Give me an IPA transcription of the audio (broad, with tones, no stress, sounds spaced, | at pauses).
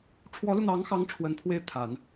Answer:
ʈ͡ʂʰ w ɔ˧˥ l u˧ n̪ ɑ˧˥ ŋ x ɑ˧˥ ŋ ʈ͡ʂʰ w ə˧˥ n pʰ w e˥˩ ɪ̯ t̪ʰ a˨˩˦ n